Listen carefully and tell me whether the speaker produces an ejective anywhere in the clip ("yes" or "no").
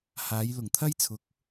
no